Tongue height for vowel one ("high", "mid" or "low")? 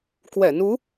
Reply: mid